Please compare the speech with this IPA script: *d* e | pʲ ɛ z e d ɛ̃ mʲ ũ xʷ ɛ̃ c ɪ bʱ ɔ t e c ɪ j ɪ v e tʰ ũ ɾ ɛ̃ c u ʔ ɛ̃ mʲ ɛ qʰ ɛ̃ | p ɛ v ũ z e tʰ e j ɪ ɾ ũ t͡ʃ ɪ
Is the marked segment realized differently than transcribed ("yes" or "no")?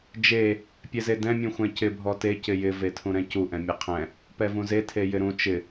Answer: yes